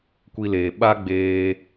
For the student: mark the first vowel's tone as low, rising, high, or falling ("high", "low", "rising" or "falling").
high